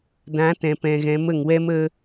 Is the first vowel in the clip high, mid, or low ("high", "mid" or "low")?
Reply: low